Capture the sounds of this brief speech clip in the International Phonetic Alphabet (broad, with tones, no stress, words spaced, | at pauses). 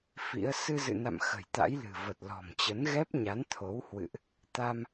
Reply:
fḭ˧˥ə̯ sɨ˧zɨ̰˧˨na̰˧˨m xə̤˨˩jt̪a̰˧˥jlɨ̤˨˩ və˨˩t̚lɔ̤˨˩m t͡ɕə˨˦nɣɛ˦˥p̚ ɲa˨˦nt̪ʰo˨˦whwɨ̰˧˨ʔ | t̪a˧m